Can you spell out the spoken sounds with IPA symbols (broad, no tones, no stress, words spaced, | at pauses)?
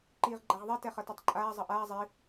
ǃiːʁɡ͡ǃaʁðˤɛ tɛχʌtɛtˤǃʼaː zˤʌʔaː zˤi